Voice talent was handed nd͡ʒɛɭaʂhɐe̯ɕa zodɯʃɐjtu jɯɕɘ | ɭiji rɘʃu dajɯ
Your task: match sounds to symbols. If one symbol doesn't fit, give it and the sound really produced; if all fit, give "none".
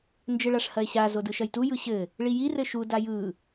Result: ɛ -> ɘ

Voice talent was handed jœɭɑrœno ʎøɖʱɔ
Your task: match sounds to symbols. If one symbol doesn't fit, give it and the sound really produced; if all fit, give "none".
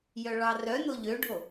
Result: ɔ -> o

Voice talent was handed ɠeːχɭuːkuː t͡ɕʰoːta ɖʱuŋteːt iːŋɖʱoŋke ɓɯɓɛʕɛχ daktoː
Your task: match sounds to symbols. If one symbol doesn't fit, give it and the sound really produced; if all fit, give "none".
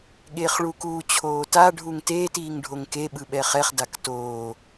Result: ʕ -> χ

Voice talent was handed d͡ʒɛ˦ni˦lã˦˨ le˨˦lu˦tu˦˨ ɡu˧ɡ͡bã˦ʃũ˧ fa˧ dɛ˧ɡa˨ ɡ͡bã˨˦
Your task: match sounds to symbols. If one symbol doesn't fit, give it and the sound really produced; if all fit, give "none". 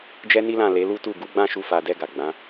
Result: ũ˧ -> u˧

